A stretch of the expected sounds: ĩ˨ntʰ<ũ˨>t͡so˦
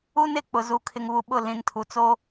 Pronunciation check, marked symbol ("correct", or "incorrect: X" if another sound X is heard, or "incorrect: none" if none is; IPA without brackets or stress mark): incorrect: u˨